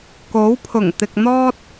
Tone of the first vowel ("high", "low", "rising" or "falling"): rising